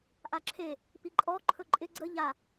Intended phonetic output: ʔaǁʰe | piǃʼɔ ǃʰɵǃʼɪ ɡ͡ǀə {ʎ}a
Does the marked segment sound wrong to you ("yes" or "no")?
no